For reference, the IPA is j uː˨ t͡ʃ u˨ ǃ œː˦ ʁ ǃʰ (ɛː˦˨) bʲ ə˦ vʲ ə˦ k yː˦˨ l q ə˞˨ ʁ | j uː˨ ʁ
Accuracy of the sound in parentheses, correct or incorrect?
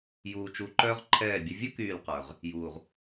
correct